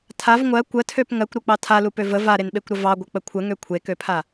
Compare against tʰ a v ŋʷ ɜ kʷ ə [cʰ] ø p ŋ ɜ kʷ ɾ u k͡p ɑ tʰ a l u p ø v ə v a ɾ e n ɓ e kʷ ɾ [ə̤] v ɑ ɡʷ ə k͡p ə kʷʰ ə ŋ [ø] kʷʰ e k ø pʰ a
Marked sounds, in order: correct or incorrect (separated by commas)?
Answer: incorrect, incorrect, correct